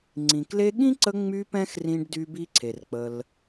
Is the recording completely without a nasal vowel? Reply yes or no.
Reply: no